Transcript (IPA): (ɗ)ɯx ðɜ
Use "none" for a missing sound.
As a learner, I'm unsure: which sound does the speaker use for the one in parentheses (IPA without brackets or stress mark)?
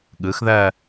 ɠ